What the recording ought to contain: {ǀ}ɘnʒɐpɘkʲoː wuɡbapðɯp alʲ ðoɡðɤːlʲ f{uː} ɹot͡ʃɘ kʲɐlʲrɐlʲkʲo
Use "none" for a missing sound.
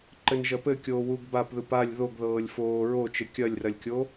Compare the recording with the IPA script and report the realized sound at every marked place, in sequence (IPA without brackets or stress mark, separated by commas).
ǃ, oː